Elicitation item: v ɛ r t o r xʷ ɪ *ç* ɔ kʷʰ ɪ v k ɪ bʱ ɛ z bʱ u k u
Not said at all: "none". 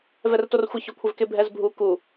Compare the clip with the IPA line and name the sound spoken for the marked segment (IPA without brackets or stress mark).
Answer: ç